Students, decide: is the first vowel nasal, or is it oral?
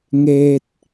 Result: oral